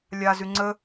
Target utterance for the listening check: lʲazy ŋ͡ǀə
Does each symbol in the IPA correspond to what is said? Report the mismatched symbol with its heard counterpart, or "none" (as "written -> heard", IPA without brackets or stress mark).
none